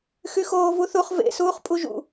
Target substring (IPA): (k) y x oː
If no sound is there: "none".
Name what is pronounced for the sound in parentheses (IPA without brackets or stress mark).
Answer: x